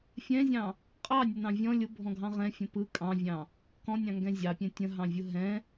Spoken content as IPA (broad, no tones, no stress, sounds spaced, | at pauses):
fʲ ɛ̃ zʲ ɑ̃ | qʼ ɑ nʲ ə n ɑ̃ vʲ ɔ̃ lʲ ʊ bʱ ɔ̃ ɡʱ ɑ̃ ʁ ɛ̃ fʲ ə̃ p ɯ kʼ ɑ̃ vʲ ɑ̃ | k ɔ̃ nʲ ɑ̃ ŋ ɡ ɛ̃ zʲ ɑ pʲ ɛ̃ tʲ ə̃ ɦ ɑ̃ vʲ ʊ ɦ ɛ̃